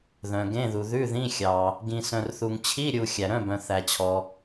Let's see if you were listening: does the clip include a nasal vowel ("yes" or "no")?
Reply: yes